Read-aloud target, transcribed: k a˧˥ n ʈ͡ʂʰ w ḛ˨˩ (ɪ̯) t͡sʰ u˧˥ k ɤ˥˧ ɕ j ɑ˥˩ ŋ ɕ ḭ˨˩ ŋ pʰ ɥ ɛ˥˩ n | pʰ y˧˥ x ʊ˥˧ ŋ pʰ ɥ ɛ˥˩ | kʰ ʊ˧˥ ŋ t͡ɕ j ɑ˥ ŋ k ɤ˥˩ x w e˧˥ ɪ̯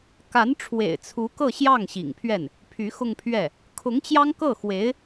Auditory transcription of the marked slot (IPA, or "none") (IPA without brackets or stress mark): ɪ̯